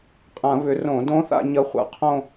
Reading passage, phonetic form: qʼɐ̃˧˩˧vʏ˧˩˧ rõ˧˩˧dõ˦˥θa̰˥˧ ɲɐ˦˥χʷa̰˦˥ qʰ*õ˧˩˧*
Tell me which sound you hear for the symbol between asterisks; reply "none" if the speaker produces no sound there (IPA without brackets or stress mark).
õ˥˧